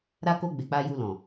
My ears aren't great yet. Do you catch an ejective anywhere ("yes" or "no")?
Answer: no